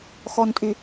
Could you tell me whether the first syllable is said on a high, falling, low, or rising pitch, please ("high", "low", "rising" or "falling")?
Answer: low